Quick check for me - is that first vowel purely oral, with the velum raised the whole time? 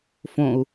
no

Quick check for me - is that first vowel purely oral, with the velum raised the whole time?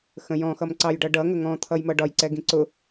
no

